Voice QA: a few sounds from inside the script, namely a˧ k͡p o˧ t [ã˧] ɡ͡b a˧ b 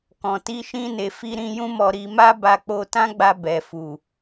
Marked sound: incorrect: ã˦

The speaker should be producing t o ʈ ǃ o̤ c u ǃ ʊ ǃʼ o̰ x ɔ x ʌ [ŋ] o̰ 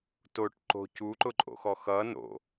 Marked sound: incorrect: n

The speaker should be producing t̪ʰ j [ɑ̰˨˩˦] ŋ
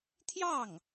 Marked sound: incorrect: ɑ˥˩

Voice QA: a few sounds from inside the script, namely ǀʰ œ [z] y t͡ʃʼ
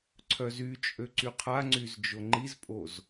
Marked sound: correct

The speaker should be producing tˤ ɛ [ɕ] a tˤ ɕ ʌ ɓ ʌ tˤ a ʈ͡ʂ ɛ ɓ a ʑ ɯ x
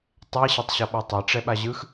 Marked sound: correct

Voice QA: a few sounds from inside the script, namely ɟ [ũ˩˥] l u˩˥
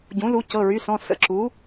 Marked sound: correct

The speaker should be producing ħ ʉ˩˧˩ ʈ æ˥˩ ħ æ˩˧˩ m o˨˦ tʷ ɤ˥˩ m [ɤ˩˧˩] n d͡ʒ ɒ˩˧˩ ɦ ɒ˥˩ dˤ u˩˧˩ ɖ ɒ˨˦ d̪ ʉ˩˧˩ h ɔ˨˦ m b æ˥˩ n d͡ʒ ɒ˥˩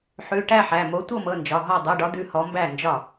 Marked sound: correct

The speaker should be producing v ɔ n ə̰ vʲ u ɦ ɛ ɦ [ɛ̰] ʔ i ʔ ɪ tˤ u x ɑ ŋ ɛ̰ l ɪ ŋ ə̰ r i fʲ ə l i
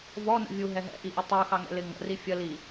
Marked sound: correct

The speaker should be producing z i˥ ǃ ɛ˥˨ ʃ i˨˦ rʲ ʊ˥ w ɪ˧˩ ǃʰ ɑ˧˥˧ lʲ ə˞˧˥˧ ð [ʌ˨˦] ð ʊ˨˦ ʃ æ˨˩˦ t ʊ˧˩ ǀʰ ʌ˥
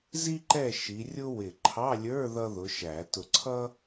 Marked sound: incorrect: ʌ˥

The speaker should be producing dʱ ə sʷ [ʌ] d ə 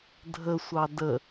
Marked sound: incorrect: ɑ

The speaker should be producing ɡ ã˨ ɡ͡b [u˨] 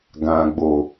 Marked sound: incorrect: o˨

